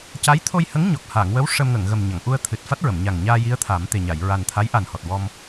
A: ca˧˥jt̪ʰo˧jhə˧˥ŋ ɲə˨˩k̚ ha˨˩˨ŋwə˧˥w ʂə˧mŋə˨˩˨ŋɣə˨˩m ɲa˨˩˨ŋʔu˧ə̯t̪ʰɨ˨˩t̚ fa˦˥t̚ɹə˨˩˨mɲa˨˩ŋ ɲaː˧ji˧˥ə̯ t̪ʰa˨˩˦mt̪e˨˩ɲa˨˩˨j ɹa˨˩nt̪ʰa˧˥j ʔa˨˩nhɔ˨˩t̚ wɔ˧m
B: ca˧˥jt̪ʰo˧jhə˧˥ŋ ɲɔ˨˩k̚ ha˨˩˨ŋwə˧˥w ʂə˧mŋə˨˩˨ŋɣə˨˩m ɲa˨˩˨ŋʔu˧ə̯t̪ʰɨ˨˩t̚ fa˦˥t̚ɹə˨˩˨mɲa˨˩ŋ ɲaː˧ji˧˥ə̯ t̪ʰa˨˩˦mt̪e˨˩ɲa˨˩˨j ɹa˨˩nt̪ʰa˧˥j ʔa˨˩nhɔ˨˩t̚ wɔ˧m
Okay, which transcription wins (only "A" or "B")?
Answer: B